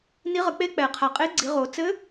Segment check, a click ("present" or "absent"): present